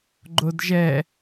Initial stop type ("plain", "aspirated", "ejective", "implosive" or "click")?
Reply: click